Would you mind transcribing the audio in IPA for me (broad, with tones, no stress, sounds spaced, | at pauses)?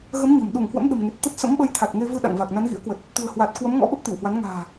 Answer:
ɣ ə˨˦ m ɲ ə̤˨˩ m ɗ u˧˩ ŋ h w ə̰˧˥ m ɗ ə̤˨˩ m ŋ e˨˩ t̚ t̪ ə˦˥ t̚ s ə̰˧˥ m ɓ ə˧ j t̪ʰ a˨˩ t̚ ŋ e˧ v ɨ˧ ɗ a̰˧˨ ŋ v a˨˩ k̚ n a˨˦ n ɣ ḭ˧˥ ə̯ k w ə˨˩ t̚ | t̪ ṳ˨˩ ə̯ h w a˨˩ t̚ k w ə˨˦ m ŋ ɔ̰˧˥ ɓ ə˦˥ p̚ t̪ i˧˩ w h w a˨˦ n ŋ a̤ː˨˩